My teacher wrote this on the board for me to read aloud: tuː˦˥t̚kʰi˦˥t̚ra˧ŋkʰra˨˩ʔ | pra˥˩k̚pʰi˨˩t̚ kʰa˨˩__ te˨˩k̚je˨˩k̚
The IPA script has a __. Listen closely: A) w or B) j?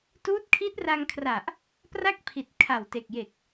A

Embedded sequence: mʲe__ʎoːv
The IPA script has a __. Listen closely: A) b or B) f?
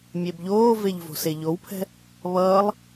A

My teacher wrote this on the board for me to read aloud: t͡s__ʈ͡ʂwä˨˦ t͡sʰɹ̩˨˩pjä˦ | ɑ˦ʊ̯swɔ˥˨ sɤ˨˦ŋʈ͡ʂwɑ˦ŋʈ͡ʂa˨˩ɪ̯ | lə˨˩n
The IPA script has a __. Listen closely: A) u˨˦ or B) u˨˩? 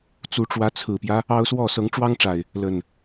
A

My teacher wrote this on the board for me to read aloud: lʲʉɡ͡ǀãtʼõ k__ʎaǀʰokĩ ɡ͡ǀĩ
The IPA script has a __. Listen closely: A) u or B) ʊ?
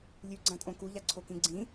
A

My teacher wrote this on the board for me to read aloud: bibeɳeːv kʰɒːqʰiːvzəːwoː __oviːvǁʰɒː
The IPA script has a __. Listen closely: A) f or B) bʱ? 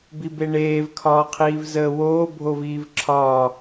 B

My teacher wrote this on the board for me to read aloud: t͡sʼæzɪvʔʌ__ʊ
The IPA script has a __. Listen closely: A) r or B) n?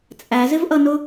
B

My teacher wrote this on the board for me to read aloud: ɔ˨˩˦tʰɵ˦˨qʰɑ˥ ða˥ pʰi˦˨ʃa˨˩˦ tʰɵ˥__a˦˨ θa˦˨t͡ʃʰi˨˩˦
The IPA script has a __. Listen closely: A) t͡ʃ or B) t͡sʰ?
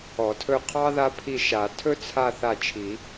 B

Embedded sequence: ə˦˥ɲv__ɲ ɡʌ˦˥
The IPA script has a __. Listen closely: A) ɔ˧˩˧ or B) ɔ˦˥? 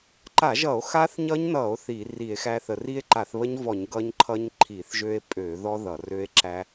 A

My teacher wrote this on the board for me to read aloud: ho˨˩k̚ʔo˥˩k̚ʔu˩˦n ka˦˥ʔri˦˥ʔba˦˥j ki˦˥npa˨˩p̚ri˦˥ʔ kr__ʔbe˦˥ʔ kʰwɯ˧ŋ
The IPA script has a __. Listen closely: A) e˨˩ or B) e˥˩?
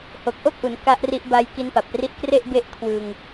B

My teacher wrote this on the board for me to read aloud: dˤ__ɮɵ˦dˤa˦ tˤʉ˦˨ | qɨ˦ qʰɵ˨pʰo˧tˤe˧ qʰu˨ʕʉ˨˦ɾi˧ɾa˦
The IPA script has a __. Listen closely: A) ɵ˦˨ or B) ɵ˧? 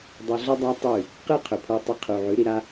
B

